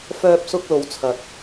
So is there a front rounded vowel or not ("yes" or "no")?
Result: yes